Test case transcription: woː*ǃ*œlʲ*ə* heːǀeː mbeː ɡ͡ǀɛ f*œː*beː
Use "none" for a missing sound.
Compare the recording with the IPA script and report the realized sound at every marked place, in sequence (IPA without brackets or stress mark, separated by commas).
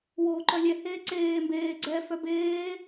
ǃ, ɛ, œ